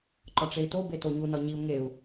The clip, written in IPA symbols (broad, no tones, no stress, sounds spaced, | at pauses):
ǃ ɒ ʈ͡ʂ e i̯ t o b e t o ɲ u n ɒ ɲ i u̯ ŋ e u̯